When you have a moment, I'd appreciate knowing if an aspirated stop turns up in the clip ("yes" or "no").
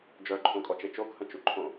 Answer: yes